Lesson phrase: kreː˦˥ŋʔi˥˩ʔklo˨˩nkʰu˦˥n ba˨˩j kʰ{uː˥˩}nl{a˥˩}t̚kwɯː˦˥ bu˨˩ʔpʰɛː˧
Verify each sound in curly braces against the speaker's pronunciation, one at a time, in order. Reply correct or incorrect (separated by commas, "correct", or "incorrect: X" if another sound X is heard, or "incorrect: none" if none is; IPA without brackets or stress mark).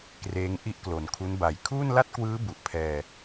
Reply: correct, correct